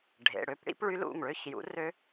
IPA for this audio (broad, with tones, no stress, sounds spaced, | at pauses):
ɖʱ ḛ˩˧˩ ɽ ø˥˧ p ɽ ḭ˦˥ p ɭ y˦˥ l ṵ˩˧˩ ŋ ɭ ø˥˧ ç j ṵ˨˥ r ø˦˥